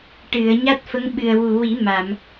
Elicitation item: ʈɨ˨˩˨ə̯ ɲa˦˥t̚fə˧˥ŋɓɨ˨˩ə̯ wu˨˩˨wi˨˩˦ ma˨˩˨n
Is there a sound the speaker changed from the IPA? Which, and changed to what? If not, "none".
n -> m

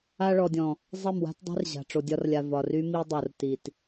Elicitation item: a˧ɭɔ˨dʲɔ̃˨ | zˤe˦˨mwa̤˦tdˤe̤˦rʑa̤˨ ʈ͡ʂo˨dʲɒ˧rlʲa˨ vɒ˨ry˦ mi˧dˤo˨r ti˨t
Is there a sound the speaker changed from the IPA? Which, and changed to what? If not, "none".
none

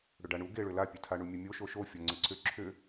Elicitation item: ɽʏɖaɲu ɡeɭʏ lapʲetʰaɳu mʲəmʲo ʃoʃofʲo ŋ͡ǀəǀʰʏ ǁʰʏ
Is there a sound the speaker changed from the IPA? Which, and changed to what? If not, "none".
ɲ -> ɳ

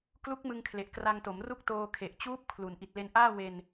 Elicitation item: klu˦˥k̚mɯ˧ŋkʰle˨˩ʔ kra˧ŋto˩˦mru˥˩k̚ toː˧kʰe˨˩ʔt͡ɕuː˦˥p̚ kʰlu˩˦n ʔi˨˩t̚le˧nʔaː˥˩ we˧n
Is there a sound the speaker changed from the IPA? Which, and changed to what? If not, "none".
none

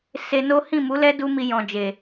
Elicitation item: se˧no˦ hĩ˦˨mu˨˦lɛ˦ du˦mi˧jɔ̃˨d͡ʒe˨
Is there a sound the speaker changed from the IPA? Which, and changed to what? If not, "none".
none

